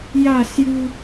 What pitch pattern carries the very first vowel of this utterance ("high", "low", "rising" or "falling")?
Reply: falling